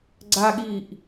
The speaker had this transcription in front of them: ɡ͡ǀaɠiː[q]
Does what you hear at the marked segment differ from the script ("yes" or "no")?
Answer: yes